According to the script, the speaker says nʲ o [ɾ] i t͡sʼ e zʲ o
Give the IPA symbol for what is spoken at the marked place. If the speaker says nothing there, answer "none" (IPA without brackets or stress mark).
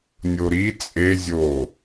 ɾ